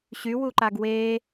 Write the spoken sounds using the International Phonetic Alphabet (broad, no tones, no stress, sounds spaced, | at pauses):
ɕ y w u ǃ a ɡ w e